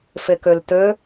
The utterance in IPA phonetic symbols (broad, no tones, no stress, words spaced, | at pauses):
fɘkɵltɵ